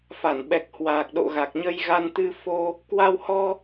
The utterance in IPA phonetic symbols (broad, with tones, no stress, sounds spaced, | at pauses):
f a˧˩ n ɓ ɛ˨˩ k̚ h w aː˨˩ k̚ ɗ o̰˧˨ ɣ a˨˩ k̚ ɲ ə˧ j ɣ a˧ n t̪ ɨ˧ f o˧ | k w a˧ w h ɔ˧